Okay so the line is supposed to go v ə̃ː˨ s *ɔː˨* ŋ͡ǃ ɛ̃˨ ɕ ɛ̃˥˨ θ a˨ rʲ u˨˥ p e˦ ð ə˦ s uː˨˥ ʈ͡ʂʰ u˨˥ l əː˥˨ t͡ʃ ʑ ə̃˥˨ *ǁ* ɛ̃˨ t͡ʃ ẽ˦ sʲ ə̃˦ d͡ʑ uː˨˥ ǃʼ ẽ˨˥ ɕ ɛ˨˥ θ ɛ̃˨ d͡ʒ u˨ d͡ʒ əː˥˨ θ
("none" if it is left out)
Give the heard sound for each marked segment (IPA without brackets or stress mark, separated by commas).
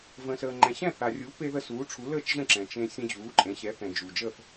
əː˨, ǁ